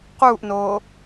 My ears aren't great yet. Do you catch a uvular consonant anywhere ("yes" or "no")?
yes